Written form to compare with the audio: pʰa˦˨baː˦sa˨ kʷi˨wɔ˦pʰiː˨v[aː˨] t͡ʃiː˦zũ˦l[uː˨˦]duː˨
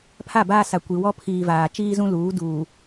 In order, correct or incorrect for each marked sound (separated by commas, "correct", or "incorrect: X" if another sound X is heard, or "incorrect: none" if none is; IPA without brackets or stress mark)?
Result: correct, correct